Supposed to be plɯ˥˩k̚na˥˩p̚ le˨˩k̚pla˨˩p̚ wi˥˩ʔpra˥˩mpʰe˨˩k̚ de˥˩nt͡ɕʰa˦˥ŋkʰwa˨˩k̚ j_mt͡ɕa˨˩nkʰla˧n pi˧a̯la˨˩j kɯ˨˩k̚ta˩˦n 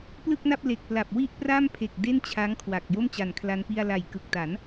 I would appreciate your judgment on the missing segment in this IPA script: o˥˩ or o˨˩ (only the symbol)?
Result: o˥˩